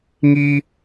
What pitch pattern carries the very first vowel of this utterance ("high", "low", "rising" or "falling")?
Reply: high